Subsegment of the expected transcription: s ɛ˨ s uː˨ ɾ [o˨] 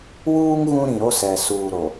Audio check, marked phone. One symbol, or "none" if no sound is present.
o˨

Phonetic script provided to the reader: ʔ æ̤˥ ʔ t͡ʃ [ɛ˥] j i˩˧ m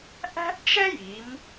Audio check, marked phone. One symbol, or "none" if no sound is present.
ɛ˥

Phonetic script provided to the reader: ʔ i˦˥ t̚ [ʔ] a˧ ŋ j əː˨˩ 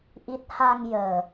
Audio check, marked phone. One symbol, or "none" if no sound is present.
h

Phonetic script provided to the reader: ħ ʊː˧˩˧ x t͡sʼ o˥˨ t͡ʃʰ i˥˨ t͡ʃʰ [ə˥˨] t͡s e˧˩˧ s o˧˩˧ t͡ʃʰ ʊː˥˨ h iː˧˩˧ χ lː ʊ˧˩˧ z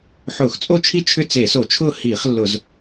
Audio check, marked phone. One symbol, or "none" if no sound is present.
ʏ˥˨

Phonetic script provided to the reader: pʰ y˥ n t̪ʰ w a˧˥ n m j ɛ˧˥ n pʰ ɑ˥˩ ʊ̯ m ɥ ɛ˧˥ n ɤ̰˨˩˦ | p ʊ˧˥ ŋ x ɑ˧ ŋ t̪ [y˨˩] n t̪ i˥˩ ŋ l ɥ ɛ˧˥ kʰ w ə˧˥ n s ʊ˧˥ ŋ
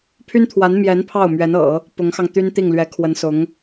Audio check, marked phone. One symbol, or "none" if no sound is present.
y˥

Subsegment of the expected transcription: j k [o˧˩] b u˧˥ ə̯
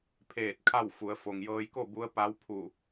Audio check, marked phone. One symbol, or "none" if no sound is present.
o˥˨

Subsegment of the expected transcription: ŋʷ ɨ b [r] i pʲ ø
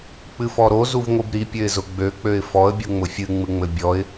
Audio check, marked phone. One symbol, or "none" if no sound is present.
ɾ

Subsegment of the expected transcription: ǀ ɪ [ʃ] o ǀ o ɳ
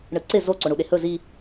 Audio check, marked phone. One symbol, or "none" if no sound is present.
z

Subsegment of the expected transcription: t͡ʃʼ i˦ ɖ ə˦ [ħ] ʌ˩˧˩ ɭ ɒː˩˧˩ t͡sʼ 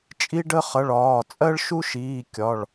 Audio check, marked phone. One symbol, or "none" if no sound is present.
χ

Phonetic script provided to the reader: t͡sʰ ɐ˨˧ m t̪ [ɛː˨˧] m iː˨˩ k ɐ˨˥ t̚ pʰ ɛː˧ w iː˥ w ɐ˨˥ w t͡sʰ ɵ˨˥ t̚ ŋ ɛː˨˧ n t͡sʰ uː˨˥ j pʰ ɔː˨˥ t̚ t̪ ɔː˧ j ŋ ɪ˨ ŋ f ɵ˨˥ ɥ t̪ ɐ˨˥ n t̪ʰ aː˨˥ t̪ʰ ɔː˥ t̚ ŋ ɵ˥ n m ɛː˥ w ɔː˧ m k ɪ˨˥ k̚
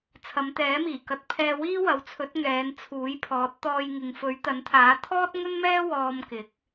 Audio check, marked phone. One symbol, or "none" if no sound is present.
ɛː˨˥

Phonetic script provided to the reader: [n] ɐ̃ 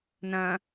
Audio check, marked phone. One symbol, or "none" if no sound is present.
n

